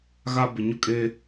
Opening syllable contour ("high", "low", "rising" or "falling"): high